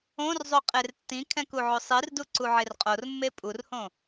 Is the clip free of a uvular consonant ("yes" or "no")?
no